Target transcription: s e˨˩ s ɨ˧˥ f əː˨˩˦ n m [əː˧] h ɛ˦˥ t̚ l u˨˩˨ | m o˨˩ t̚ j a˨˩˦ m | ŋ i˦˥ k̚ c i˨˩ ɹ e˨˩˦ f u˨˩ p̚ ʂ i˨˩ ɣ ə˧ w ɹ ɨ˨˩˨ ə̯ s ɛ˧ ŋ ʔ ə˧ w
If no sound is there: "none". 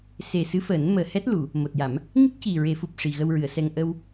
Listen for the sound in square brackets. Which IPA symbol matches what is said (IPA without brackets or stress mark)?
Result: əː˨˩